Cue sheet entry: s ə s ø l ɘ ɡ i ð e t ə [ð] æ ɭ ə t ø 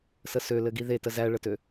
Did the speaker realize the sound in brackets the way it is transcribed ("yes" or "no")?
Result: no